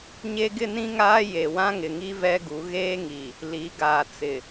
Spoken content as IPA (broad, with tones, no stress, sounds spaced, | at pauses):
ɲ e˦ ɡ ɪ˦ n ĩ˦ ŋ aː˦ j e˨ w ã˦ ŋ ɪ˨ ŋ i˦ v ɛ˦ ɡ u˨˦ ɣ eː˦ ŋ i˨ | l i˨˦ ɡ aː˨ t͡s ɪ˨